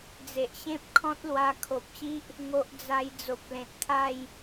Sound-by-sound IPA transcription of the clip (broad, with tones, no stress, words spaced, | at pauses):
d͡ze˨ʔɕẽ˦p̚ kʰɔ̃˦t̚lwa˧ kʰo˨p̚ɕi˦ʔ | ŋo˦ʔ d͡za˧j d͡zo˨p̚lẽ˨t̚t̪ʰa˥˧j